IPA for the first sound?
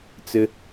t͡s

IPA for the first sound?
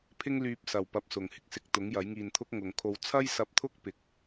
pʰ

